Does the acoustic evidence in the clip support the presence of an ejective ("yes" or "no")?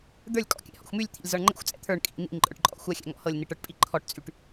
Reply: yes